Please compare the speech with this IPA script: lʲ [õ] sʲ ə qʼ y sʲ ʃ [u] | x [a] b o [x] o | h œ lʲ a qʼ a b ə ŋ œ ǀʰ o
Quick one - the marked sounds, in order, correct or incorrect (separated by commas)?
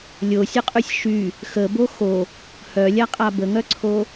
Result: incorrect, incorrect, incorrect, correct